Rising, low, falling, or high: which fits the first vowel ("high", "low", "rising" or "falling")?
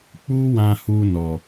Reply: high